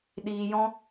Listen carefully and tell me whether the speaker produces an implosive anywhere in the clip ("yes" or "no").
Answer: yes